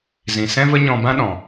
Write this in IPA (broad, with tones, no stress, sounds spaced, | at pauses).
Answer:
z ĩ˨ s ɛ̃˦ v ə˦ ɲ ɔ̃˧ b ã˦ ɗ ɔ̃˨